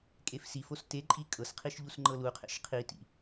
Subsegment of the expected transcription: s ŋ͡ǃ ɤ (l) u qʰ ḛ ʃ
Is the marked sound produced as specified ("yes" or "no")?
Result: yes